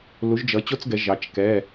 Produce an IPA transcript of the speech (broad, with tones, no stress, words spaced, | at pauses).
lu˩˧ʒd͡ʒʌ˩˧ t͡ɕo˦t͡sɡɛ˩˧ ʒɑ˩˧t͡ʃ kɛ˩˧˩